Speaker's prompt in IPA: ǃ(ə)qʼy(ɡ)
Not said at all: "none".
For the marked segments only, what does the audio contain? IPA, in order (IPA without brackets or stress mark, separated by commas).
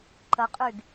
ə, ɡ